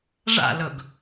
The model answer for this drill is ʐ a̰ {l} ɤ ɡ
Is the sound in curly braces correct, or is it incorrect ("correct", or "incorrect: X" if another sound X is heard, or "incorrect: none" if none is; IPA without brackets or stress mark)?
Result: correct